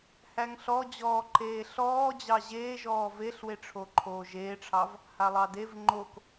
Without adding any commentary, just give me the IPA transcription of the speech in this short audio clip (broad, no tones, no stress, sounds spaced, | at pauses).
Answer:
h æ ŋ ɬ ɔ d͡ʑ ɔː ǃ eː ɬ ɔː d͡ʑ ɑ ʑ eː ʒ ɔː v e ɬ w e ʈ͡ʂʰ o ǃʰ oː ʒ eː ʈ͡ʂʰ ɑ v | h a lˠ ɑ d e v ŋ͡ǃ o k